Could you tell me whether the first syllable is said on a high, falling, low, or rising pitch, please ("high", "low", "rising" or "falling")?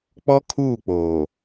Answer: high